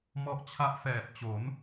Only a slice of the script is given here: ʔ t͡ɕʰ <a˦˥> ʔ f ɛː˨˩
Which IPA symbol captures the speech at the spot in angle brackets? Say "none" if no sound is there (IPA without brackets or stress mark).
a˦˥